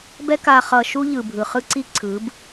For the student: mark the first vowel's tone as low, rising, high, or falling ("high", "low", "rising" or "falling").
high